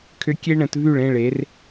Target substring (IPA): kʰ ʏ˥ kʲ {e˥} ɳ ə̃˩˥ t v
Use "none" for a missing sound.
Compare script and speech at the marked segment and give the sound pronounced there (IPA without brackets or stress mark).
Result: e˥